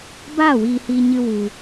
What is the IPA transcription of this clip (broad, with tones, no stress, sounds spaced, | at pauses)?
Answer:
b aː˦˨ w iː˧ h iː˧ ɲ ɨ˧ w u˧